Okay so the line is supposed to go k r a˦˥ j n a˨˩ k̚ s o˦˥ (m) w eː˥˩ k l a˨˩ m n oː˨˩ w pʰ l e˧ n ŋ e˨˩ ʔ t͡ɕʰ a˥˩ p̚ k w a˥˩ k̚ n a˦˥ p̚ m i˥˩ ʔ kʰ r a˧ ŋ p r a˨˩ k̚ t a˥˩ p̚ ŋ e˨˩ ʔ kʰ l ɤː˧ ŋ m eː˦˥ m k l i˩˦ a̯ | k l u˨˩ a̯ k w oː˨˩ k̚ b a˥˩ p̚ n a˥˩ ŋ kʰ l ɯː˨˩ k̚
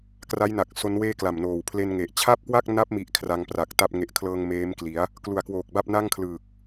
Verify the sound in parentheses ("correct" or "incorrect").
incorrect